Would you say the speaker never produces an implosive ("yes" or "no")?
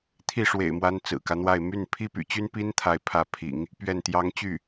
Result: yes